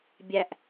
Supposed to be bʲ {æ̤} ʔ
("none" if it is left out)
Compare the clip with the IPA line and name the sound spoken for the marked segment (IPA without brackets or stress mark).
æ